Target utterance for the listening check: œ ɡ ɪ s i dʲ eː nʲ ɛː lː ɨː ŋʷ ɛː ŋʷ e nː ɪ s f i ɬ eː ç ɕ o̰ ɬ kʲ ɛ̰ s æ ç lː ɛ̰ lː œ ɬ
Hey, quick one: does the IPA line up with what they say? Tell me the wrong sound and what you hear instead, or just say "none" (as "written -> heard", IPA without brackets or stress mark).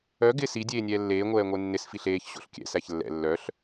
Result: ɨː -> eː